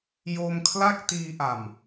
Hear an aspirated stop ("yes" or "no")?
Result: yes